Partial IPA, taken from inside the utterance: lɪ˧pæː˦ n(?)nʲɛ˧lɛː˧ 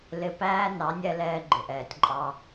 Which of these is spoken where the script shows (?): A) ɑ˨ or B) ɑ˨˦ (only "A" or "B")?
B